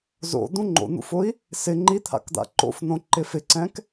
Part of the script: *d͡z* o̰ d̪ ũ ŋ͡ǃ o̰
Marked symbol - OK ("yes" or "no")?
no